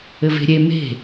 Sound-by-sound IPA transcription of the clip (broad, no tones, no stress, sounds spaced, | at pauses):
ɘ v e̤ ɾʲ e m e̤